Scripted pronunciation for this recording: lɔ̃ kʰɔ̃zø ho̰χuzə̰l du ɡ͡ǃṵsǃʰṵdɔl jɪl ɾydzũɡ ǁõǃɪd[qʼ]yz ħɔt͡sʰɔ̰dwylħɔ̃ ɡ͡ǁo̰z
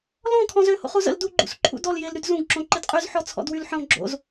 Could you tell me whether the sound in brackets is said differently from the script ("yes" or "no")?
no